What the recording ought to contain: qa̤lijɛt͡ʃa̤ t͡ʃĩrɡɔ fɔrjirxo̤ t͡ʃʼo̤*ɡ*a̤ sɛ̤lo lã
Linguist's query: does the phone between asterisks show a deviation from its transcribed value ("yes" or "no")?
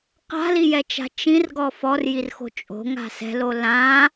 yes